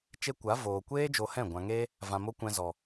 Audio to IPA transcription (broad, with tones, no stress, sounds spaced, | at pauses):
t͡ʃ e˧ kʷ a˨˦ v oː˨ kʷ eː˦ d͡ʒ o˧ h ɛ̃˦˨ ɡʷ ã˨ ŋ eː˦ | v ã˧ m o˦ kʷ ɛ̃˧ z ɔ˨